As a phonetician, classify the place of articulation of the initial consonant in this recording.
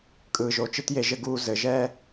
velar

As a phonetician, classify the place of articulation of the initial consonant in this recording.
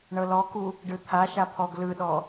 retroflex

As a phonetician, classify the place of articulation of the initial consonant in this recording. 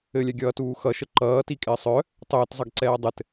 alveolar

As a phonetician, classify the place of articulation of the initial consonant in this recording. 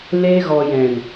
alveolar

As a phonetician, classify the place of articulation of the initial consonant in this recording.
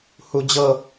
glottal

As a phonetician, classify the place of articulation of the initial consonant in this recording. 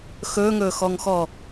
velar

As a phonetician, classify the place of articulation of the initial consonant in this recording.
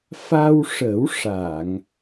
labial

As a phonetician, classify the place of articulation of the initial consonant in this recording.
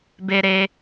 labial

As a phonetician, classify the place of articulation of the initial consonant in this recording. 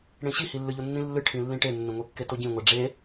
retroflex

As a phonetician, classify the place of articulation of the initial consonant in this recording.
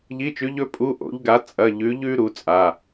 palatal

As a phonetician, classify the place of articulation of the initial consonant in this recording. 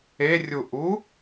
alveolar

